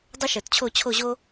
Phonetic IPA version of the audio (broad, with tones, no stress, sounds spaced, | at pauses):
dˤ ə˥ ʃ ə˞˨˩ t t͡ɕʰ o˥˨ t͡ɕʰ o˥˨ ʑ o˥